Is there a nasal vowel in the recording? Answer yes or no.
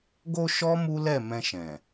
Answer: yes